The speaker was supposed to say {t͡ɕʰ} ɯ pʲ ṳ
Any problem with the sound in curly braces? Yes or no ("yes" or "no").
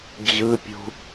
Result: yes